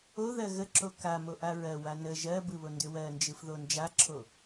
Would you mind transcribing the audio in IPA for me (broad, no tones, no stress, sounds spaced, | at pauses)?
o ð ɜ ɣ ə ǁ o k a m o ʔ a ɹ ɜ w a n ə ʒ ɜ b ɯ β o n d ʏ w ɜ n d͡ʒ ɯ f ð o n d͡ʒ a ǁʰ o